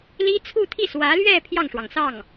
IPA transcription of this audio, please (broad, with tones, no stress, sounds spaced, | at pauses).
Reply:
l i˥ t͡sʰ u˥˧ t̪ʰ i˥˩ s w ä˧˥ l ɥ ɛ˥˧ pʰ j ɑ˥˩ ŋ ʂ w ɑ˩ ŋ s ɑ˥˩ ŋ